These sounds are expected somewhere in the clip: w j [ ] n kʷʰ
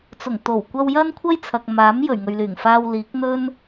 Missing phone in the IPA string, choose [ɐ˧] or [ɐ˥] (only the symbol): ɐ˥